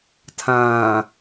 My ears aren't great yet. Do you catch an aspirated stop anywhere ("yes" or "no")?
yes